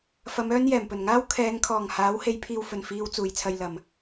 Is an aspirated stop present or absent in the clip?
present